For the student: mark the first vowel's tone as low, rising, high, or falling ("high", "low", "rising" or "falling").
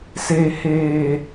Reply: low